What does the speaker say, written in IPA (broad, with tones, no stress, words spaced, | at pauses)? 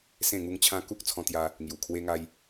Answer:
sẽ˥˧ŋu˦ŋt͡ɕʰã˦ ku˦k̚t͡sʰɔ̃˧t̪ja˧ | ŋju˨˩kʰwe˦ŋa˦j